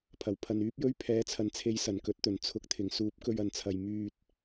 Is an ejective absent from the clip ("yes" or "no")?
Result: yes